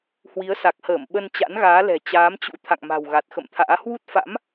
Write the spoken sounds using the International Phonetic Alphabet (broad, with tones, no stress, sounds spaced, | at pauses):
h w i˨˦ ə̯ s a˨˩ k̚ h əː˧˩ m ɓ ə˧ n t͡ɕ a̰˧˥ n ɣ aː˨˦ l ɛ̤˨˩ t͡ɕ aː˨˦ m t͡ɕ ṵ˧˥ t̪ʰ a̰˧˨ ŋ m a̤˨˩ w ɣ a˨˩ t̚ x ə̰˧˨ m t̪ʰ a̰ː˧˥ h w u˦˥ t̚ f a̰˧˥ m